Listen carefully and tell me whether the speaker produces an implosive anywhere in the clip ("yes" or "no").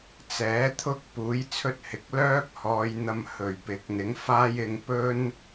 no